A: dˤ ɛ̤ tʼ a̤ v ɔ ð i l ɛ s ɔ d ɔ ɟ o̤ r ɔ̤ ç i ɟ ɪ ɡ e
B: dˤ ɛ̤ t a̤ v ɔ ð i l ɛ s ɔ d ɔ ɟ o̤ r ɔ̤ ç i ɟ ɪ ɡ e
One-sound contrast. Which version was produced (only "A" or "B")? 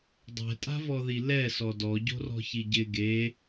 A